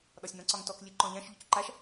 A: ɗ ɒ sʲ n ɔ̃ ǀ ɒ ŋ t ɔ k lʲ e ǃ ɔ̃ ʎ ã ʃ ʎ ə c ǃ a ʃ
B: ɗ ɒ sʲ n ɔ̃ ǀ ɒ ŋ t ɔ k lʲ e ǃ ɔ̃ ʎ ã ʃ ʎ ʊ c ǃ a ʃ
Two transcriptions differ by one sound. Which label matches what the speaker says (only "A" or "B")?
B